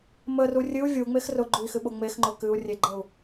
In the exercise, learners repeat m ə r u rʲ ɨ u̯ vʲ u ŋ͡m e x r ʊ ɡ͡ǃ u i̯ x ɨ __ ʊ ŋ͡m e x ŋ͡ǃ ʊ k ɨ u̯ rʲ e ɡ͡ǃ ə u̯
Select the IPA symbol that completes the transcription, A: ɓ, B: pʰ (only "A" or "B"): A